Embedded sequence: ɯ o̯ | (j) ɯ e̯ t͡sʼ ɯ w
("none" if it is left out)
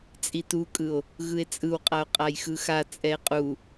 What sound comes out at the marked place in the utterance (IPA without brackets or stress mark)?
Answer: ɣ